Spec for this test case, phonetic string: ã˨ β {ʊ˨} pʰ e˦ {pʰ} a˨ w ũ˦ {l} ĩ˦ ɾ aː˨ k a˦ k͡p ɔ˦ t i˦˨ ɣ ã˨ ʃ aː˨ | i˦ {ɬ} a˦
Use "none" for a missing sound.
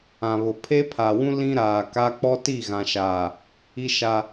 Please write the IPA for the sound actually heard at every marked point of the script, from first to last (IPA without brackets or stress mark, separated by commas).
ʊ˨, pʰ, l, ʃ